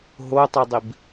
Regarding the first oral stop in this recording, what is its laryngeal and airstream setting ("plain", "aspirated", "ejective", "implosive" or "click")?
plain